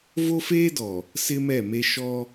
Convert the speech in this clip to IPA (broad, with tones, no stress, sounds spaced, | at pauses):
v o˦ f eː˦ d ɔ˨ | s ɪ˦ m ɛ˦˨ m e˦ ʃ ɔ˦